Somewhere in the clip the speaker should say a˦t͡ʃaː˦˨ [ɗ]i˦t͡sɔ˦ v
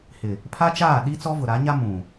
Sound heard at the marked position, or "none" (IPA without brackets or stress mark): ɗ